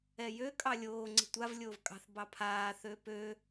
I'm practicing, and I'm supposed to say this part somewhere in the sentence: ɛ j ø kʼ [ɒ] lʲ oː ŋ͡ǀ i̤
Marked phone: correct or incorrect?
incorrect